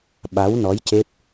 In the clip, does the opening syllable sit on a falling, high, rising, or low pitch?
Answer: rising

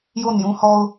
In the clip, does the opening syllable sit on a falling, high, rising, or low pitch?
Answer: falling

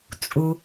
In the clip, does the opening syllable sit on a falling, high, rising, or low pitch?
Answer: low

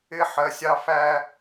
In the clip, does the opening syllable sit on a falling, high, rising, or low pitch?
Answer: high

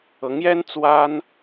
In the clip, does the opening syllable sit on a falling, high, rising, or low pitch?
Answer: rising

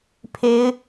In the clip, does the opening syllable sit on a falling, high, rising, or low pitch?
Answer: high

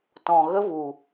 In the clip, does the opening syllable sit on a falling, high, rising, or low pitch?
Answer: low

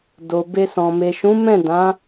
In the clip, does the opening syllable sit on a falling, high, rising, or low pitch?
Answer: low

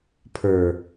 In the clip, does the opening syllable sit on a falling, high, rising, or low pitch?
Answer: low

